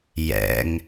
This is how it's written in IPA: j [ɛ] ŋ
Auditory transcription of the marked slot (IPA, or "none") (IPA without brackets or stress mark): ɛ̰